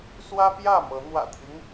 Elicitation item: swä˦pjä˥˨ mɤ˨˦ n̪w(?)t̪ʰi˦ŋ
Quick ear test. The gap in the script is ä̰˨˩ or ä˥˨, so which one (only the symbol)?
ä̰˨˩